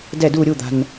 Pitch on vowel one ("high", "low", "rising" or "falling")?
falling